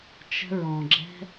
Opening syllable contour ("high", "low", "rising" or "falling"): high